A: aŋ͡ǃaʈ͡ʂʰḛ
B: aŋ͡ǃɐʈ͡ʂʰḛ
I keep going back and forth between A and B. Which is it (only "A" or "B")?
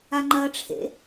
B